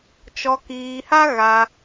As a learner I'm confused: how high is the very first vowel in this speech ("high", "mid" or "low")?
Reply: mid